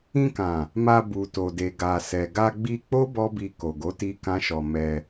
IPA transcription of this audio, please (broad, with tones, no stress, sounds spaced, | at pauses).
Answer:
ĩ˧ k ã˨ | m a˧ b u˨ t o˨ d e˨ ɡ a˨ s ɛ˨ ɡ a˧ ɡ͡b i˧ k͡p o˦ b ɔ˦ b i˧ k o˨ ɡ o˨˦ t i˧ k ã˦ ʃ ɔ˧ m ɛ˧